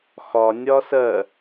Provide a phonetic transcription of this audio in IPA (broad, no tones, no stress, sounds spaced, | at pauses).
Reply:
x ɒ nʲ ɒ s ɜ